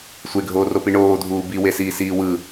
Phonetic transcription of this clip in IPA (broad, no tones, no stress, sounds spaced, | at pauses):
sʷ e ɡʱ oː r o p i ɳ oː dʱ uː b i w e s iː s iː w ɯ